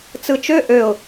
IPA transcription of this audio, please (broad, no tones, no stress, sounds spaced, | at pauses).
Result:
t͡s ɯ t͡ʃ ø ʔ ø ʊ̯